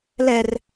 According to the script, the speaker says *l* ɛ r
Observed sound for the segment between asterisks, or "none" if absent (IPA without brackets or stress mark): l